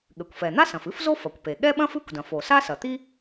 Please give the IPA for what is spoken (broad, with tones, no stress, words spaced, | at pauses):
ɠɘ˩kʷfɛ˩ n̪a˥sɐ̃˩f ɨ˥fzo˥f ɐ˩kʷpe˩ ɠɛ˥ɓɐ̃˥f ɨ˥kʷdɐ̃˩f o˩sa˥sɐ˩t̪i˥